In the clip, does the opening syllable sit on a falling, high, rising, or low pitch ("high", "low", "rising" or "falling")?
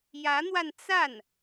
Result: rising